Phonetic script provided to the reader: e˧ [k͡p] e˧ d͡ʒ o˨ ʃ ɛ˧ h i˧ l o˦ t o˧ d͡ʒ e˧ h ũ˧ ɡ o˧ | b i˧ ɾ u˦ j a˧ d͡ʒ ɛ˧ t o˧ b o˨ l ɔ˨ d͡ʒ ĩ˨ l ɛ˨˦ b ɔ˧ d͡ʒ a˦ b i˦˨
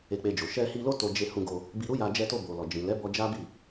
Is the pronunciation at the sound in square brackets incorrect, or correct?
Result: correct